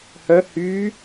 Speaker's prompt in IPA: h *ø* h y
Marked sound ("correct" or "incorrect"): incorrect